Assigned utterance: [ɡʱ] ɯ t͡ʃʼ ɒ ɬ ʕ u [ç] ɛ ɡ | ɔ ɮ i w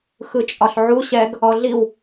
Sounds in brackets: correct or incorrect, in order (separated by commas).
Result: incorrect, incorrect